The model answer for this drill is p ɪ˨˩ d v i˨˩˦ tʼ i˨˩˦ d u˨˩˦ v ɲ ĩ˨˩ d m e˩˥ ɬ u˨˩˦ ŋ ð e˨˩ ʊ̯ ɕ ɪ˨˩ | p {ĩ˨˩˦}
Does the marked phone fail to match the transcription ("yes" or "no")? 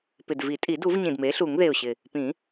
no